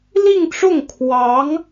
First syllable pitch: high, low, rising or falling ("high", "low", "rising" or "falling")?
falling